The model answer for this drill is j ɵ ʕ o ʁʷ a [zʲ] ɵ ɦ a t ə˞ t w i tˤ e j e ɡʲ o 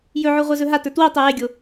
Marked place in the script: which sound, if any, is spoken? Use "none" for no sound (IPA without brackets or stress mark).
z